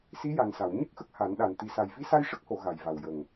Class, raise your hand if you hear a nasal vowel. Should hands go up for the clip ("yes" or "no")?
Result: no